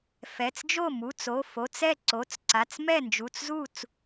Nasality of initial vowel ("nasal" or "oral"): oral